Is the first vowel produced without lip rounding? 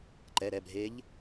yes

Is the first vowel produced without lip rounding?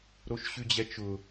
no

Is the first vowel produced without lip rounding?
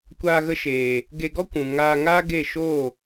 yes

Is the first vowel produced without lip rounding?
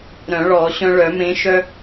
no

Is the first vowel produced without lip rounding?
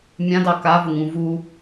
yes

